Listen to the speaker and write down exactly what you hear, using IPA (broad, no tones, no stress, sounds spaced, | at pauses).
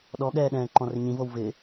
ɗ ɔ ɠ ɛː ɗ ɛ̃ː ǃ ɔ̃ r ɪ ɲ ĩ v o w v ɪ